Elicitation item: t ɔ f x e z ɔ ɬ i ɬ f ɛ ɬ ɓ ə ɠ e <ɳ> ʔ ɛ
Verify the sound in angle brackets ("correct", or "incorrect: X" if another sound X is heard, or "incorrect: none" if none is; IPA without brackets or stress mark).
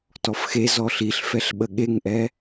incorrect: ŋ